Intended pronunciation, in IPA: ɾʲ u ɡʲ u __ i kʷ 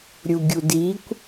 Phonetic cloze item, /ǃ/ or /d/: d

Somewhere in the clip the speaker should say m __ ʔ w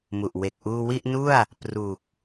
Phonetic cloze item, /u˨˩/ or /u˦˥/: u˨˩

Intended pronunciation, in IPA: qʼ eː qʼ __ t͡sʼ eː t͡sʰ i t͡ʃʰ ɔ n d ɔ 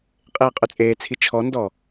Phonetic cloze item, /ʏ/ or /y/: ʏ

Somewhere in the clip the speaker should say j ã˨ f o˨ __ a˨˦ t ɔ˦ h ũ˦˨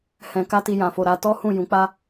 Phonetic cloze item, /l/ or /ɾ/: ɾ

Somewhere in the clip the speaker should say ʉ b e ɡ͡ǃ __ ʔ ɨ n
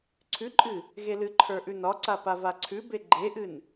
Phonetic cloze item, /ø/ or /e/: e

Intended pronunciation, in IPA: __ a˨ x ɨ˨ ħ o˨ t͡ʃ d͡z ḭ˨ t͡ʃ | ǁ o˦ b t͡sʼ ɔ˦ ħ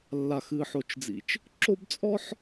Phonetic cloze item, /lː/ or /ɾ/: lː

